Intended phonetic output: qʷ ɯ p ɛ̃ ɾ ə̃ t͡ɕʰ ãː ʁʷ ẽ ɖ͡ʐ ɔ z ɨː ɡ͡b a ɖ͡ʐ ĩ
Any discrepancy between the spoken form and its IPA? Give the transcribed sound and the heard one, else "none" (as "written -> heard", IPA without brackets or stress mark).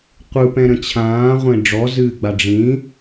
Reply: none